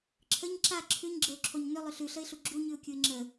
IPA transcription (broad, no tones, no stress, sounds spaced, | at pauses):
ǁʰ ə ɲ ǁ a ǁʰ ʉ ɲ ɡ͡ǁ ə ʊ̯ ǁʰ o ɲ n ʏ lˠ ʏ ɬ ʉ ɬ ə ɪ̯ ɬ u ɡ͡ǁ u ɲ ʉ ʊ̯ kʲ u ɪ̯ ŋ͡ǁ ə